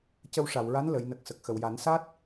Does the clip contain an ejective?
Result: no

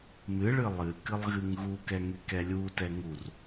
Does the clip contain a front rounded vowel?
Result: yes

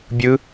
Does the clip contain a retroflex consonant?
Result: no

